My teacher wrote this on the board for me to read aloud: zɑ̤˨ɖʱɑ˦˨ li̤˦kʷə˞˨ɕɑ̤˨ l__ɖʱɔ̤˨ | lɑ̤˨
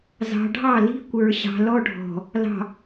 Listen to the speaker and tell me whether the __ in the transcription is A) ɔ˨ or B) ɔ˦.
B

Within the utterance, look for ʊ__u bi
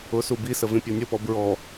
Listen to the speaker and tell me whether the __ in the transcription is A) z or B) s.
B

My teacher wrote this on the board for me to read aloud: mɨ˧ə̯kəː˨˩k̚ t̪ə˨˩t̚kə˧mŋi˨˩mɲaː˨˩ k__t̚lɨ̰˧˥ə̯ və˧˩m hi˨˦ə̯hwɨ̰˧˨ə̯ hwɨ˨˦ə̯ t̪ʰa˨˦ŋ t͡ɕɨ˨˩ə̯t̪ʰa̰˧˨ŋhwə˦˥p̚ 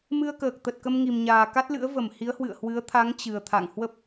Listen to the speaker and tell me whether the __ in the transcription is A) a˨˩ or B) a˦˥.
B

